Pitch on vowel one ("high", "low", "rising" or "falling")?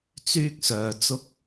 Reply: high